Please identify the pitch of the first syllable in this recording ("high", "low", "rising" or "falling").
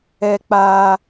high